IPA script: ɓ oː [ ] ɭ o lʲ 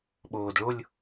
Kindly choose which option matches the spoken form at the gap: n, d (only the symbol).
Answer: d